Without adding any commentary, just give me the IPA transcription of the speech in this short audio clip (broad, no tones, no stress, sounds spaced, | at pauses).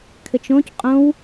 kʰ ɘ t͡ʃ õ c qʼ õ w